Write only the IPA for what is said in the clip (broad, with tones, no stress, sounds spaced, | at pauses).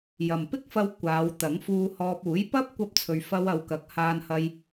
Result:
j ɐ˨ m p ɪ˥ k̚ f ɐ˧ w kʷ aː˨˧ w t̪ ɐ˨˥ ŋ f uː˧ h ɔː˧ p̚ uː˨˥ j p ɐ˥ p̚ kʷ ɐ˧ p̚ t͡sʰ ɵ˨ ɥ f ɐ˧ w ɐ˨˧ w k ɐ˨˥ k̚ h aː˧ n h ɐ˧ j